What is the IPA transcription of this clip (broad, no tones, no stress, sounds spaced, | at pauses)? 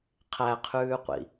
qʰ æ qʰ ʉː qʷ ḭ